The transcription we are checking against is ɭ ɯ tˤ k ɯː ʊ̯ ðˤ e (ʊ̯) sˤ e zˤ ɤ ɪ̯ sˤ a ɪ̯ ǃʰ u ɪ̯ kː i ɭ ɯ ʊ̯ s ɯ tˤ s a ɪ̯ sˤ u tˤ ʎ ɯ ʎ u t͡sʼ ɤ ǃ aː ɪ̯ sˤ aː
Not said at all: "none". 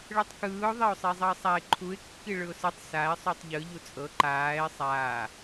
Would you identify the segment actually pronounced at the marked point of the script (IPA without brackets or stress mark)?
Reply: ʊ̯